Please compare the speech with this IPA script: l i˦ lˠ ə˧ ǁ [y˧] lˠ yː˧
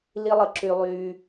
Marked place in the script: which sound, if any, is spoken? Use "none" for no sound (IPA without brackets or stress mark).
y˧